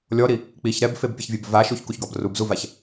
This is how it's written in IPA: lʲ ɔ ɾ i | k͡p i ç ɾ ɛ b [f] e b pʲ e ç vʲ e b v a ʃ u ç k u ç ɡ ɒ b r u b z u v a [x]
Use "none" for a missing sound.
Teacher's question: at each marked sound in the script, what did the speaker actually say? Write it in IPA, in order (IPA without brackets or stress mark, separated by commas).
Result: f, ç